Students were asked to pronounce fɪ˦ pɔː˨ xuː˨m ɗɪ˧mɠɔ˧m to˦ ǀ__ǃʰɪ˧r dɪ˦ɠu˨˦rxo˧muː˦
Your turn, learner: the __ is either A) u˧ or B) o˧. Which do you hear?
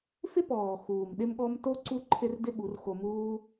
A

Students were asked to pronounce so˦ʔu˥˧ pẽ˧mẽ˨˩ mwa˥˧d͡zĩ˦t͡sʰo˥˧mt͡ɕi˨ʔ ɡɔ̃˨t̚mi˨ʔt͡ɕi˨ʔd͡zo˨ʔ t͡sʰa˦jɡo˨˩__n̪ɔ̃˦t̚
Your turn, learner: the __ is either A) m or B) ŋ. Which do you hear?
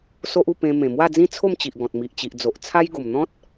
A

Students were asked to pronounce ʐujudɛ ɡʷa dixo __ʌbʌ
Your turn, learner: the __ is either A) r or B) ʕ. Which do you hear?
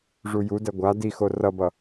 A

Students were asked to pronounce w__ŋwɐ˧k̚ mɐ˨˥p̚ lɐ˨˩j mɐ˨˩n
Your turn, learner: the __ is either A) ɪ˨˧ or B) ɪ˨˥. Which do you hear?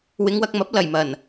A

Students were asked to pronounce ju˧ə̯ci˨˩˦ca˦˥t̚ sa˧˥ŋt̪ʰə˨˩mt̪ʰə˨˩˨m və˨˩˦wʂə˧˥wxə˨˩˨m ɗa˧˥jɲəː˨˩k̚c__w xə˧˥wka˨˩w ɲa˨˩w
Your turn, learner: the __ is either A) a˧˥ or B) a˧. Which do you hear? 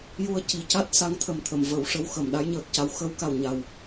A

